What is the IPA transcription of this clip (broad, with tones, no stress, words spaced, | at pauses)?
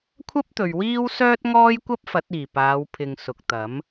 kʷʰɐ˥p̚t̪ɵ˨ɥ wiː˥w sœː˥t̚ŋɔː˥j kʷɐ˥p̚fɐ˨˥t̚iː˨˩ paː˨˧w pʰɪ˨ŋ sʊ˨k̚t̪ɐ˨˥m